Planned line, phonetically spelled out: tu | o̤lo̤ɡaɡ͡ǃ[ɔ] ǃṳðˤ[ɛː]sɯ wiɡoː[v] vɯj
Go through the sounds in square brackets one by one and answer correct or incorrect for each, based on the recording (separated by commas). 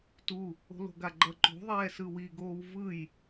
incorrect, correct, incorrect